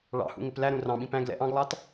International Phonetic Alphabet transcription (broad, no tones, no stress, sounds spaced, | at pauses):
ɭ ɑ̰ h ṵ ŋ ɪ p l æ ɾ ũ r ɑ̃ ɓ ĩ p æ̃ ɡ l ɛ̰ ʔ ɑ̃ ɡ lˠ ɑ t